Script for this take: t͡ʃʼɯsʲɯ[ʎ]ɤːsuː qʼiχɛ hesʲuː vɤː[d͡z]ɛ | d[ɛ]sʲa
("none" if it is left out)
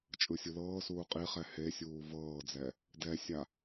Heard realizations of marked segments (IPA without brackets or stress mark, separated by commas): l, d͡z, ɛ